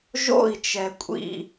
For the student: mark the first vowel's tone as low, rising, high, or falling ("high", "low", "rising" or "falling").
falling